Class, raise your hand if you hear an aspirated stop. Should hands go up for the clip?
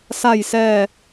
no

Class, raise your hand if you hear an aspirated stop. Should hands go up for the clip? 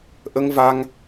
no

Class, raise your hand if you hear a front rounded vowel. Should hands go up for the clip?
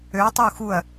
yes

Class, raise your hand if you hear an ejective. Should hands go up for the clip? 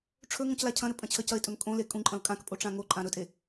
yes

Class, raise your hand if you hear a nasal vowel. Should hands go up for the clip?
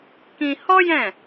yes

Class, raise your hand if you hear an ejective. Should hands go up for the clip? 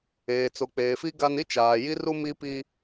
no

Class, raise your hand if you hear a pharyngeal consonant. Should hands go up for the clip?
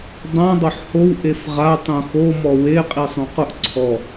yes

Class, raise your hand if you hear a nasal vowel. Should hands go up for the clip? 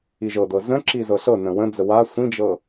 yes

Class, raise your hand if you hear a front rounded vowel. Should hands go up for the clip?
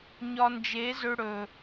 yes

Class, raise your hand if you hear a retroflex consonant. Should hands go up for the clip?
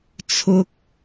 no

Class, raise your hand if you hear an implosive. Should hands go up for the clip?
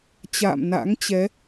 no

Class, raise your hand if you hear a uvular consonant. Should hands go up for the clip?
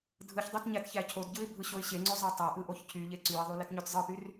no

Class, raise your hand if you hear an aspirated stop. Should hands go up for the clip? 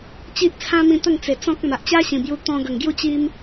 yes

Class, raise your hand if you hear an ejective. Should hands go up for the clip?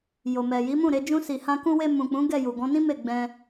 no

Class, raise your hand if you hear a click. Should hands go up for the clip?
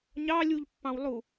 no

